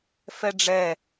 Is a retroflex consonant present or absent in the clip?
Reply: present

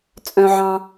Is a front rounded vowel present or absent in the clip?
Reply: present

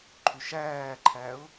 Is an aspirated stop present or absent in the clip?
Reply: present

